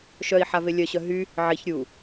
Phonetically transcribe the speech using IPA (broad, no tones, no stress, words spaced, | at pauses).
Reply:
ʃœi̯ħave lʲœɕœ ɦy | ʕiç ɾʲu